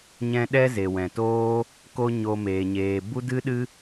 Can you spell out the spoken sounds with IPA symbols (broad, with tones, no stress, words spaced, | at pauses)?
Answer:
ɲɛ̃˧ ɗɛ˦ze˨wɛ̃˨toː˦ | ko˧ ɲo˧meː˨ ɲeː˨bu˦dɨ˦ɗɨ˦